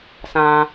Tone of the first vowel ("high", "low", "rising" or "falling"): high